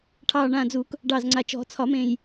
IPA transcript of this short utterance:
ʈʰɑː˨˩ɳãː˨˩d͡zu˨˩˦k | ɖɑ˨˩zŋ͡ǀa˨˩ t͡ʃɔ̤˨˩˦t͡sʰɒ˨˩˦mẽ˨˩j

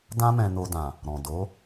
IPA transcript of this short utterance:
dã˦mɛ̃˧ no˧dã˨ | ɾɔ̃˨do˨˦

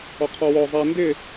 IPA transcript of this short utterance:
ɔqʰɔwɔ zˤæ ndɪ

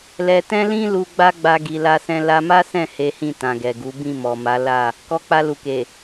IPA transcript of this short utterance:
lɛ˨tɛ̃˧lĩ˧ lu˧ ɡ͡ba˦ɡ͡ba˧ ɡi˨la˧sɛ̃˧ la˧ma˦sɛ̃˦˨ he˨˦hĩ˦˨ tã˨ɡɛ˨ɡu˨˦ bĩ˦˨mɔ˨ma˨˦ la˦˨ | kɔ˧k͡pa˧lu˨ke˨

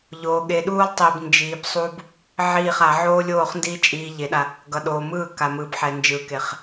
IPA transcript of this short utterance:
ʎoː˨ ɠe˨ɗuː˦lˠ tˤi˨bnd͡ʒiː˨bsˤu˦b | ʕiː˦˨χa˨˦ ʕoː˦lʲoː˦˨χndiː˦ t͡ʃʼiː˦ʎe˨˦ɗa˦ | ɡʌ˨ɗoː˨mɯː˦˨ ka˨mɯ˨bħɛ˨ nd͡ʒɯ˨˦ke˨χ

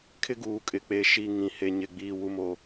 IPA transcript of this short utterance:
kʰɪ˦ɡuː˨kʼɪ˨k͡pe˨ ʃi˦˨ ŋĩ˨he˨ ɲɪ˨ɡ͡biː˨wu˨mo˨

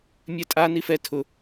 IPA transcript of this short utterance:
mʲɛtʼa nifɛ tʰʊ

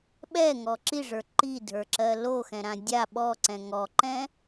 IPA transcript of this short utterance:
ɓɛŋɔ ǁiʐə˞ ǃidʱə˞ǁɜ loxɛ̃ɾã dʲa ɓɔǀɛ̃ ŋɔǃɛ̃

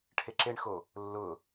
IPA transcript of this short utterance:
ʈʰeǁeɳxo | lːʊ

